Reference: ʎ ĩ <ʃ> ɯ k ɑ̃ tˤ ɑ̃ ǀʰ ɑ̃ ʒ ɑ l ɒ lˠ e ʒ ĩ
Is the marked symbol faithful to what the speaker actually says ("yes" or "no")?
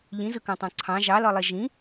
no